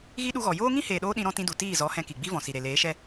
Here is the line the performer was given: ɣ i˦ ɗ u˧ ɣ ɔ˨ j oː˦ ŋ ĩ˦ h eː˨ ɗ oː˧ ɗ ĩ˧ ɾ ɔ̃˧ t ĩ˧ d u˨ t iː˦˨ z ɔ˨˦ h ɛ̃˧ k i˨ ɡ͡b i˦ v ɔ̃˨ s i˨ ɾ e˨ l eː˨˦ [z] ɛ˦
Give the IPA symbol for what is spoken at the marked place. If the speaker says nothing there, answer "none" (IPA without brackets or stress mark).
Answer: ʃ